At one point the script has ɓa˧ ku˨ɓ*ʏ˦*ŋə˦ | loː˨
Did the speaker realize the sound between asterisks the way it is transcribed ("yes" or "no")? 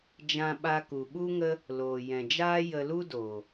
no